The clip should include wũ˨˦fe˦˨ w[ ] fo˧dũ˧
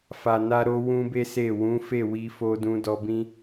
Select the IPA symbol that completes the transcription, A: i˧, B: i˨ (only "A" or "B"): A